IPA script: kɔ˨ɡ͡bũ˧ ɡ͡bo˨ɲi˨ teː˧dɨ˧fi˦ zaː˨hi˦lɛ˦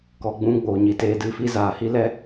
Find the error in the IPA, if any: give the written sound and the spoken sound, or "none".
none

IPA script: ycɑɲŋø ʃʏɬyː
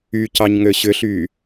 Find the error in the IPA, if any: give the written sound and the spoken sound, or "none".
ʃ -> ɕ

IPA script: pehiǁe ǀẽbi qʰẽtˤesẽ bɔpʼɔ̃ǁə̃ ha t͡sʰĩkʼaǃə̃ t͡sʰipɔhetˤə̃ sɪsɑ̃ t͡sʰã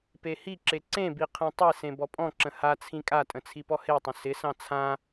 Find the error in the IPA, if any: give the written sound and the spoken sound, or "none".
ǃ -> tʼ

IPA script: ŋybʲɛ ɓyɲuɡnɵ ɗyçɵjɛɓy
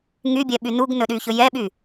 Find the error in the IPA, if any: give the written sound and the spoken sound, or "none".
ɲ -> n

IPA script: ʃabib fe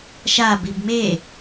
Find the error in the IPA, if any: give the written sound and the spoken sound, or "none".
f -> m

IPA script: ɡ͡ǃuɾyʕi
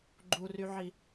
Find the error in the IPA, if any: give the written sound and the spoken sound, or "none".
ɾ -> r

